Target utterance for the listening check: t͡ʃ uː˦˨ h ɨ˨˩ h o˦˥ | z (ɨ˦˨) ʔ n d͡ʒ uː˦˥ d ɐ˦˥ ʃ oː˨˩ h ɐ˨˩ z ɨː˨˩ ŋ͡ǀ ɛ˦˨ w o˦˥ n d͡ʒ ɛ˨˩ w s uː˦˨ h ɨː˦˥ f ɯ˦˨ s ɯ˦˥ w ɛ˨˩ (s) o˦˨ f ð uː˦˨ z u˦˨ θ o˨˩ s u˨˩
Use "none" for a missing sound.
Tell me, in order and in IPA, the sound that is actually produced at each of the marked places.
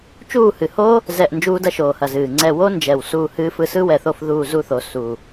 ɛ˦˨, θ

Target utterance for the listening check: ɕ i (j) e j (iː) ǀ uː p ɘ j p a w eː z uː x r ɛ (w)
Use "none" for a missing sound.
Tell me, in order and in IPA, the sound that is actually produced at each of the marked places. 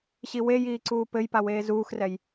w, iː, j

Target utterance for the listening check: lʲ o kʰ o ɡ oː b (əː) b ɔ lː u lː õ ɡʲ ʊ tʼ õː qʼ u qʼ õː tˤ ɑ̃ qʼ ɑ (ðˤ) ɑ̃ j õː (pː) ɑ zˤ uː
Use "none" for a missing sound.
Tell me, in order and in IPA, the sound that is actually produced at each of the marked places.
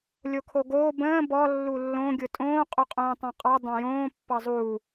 ə̃ː, dˤ, pː

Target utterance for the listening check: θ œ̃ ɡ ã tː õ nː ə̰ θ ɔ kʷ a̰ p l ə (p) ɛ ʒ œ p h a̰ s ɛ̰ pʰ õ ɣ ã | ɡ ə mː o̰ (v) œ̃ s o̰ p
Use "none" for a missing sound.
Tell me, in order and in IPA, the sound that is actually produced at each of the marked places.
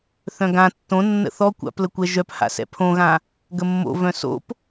kʷ, v

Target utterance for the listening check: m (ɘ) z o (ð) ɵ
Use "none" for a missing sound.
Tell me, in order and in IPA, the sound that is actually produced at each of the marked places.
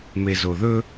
e, ð

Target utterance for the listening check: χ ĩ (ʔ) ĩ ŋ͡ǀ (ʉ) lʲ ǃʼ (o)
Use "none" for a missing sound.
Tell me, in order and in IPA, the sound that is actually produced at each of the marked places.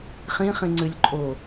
χ, ʉ, o

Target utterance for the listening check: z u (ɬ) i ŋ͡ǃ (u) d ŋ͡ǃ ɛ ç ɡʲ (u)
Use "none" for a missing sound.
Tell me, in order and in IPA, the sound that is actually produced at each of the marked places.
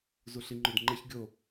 ɬ, o, o

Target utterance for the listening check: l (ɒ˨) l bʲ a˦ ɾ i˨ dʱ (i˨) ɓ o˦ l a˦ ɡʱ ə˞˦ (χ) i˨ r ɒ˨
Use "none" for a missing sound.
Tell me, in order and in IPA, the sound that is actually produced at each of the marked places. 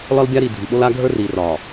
ɒ˦, i˨, r

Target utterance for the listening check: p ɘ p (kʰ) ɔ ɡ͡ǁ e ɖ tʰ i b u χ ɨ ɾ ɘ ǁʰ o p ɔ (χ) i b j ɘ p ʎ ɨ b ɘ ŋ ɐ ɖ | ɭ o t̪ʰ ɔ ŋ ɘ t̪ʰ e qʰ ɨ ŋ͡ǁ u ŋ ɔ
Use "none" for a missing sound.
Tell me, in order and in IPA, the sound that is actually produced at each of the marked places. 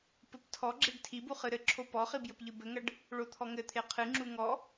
tʰ, χ

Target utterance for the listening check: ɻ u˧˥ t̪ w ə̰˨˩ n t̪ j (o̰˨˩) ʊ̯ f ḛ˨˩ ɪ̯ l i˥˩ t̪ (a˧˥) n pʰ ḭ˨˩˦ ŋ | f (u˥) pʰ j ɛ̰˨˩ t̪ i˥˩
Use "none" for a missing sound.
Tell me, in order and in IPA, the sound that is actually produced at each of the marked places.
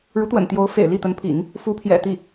o˧˥, ə˧˥, u˧˥

